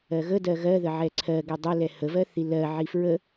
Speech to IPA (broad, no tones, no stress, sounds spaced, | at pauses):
ɜ ɣ ə d ɜ ɣ ɜ ð ə ʕ ɛ ǀʰ ɜ ɡ ɛ dˤ ə l ɛ h ə v ɜ θ i l ɜ ʕ i f ɹ ə